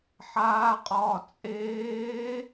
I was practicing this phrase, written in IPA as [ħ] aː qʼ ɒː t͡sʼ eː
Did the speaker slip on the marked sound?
no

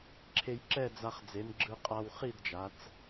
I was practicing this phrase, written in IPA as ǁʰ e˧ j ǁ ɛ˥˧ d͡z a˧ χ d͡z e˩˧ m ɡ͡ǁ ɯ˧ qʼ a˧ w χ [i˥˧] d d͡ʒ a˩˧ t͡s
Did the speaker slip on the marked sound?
no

